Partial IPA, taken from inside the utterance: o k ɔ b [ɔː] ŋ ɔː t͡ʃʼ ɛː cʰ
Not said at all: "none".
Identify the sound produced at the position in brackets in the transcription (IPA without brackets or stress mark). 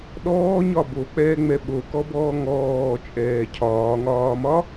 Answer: ɔː